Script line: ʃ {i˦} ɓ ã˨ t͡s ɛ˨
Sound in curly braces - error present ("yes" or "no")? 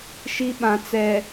no